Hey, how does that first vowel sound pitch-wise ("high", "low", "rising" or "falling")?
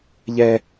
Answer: high